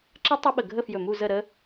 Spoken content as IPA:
ǁə˦˥ tˤɵ˦˥ɓə˧˩ɡʱə˥˧fjɵ˧˩ mu˥˧zə˥˧ɾə˦˥

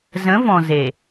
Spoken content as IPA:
zə̃˨˦vɔ̃˨ze˨

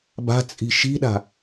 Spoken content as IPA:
ba̤t͡sʼi̤ ʃi̤ɗa̤

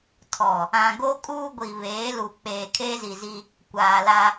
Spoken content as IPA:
tʰɔ˨ | ã˨ɡo˦ kʼuː˦ɡʷi˨ βeː˨˦lu˨ k͡peː˨kʰeː˦zi˨zi˦ | kʷaː˨la˦

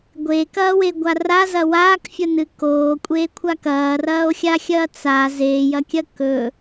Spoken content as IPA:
ɡʷekɐːweɡʷa razɐ waːkfʲɐnɨ koːkʷʼeːkʷʰa kɐːrɐːo̯xʲaxʲɐː t͡sa zeːjɐkʲɐ kɵ

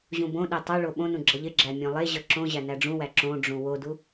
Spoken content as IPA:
ʑũbõɗe tˤoɭo ɓõnũ ɡ͡ǁʌʎɪɡ͡ǁæ mʲõlˠeʑʌ ǁõʑæ næɖ͡ʐũwæ ǁõɖ͡ʐũ wodu

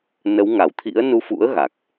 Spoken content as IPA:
nə˨˦wŋa˧˩wt̪ʰḭ˧˥ə̯ nu˧fṵ˧˥ə̯ ɣa˨˩k̚

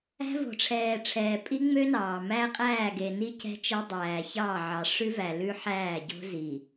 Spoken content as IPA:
æ̤˦vo̤˨ʈ͡ʂʰɛː˨ʈ͡ʂʰɛː˨ pʼi˦ŋ͡mø˦nɑː˨ mæ˦qʼæː˦˨ɡe˨ni˦ cɛ̤˦t͡ʃɛ˦dˤæː˨çɑː˦˨ ʕɑ˨ʂʉ˦væ˨ lʉ˦ħæː˦˨ɟo̤˦ zi˨

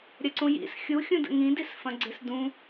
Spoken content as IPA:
ɾʲɐǀũjḭs xʲuxʲũ də̰ŋĩdisfɐ̃ ɡ͡ǀɪsdũ

